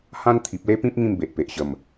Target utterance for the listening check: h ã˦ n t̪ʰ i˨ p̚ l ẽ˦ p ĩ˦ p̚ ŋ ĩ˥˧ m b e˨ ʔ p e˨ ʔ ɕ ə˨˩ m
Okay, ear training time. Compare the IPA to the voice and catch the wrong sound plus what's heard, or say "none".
ẽ˦ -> e˦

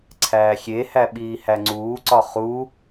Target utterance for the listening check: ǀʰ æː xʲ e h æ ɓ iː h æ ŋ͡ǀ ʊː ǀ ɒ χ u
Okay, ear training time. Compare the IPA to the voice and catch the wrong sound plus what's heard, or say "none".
ʊː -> uː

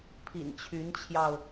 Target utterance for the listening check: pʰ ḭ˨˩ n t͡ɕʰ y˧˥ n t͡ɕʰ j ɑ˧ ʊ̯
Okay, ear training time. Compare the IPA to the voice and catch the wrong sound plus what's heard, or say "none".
none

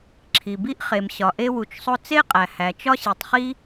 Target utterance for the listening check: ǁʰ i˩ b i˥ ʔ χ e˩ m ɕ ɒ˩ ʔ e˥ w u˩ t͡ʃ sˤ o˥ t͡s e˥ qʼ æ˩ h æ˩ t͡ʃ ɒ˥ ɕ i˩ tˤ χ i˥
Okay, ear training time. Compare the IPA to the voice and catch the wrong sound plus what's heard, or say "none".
none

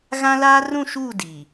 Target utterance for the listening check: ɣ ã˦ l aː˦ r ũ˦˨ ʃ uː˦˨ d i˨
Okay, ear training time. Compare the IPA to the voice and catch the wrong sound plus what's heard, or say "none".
none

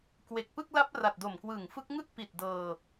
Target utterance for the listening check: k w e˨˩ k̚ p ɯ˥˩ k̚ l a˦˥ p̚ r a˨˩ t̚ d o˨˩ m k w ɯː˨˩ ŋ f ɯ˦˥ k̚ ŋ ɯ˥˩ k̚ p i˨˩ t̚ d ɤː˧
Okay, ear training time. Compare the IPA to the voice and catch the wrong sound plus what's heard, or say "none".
none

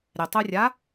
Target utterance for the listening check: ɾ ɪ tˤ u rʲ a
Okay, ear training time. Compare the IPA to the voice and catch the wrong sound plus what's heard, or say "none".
none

